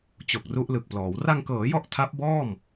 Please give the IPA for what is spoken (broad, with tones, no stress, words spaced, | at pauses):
t͡ɕo˨˩k̚ru˦˥ʔlɯ˨˩k̚plɔː˩˦w ra˧ŋkɤː˩˦jɔ˦˥ʔ tʰa˦˥p̚bɔː˥˩m